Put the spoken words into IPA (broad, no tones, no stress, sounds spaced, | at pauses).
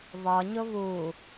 β ɒ ɲ ʊ β u